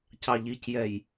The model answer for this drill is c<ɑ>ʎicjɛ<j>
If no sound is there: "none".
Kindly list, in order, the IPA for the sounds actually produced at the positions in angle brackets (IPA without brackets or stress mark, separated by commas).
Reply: ɑ, j